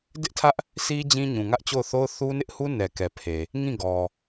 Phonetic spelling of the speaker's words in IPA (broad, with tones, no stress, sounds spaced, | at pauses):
d ɪ˦ ʔ tʰ ä˦ ʔ | sʰ i˦ d͡ʑ ĩ˦ ɲ ũ˨ ŋ ä˦ ʔ t͡ɕ o˦˨ ʊ̯ θ o˦ ʊ̯ θ u˦ n ɪ˦ ʔ h u˦ n ɛ˨ k ɛ˨ pʰ e˨ | ŋ ĩ˦˨ ɡ ɔ˨